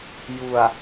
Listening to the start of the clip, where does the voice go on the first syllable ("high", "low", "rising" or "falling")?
low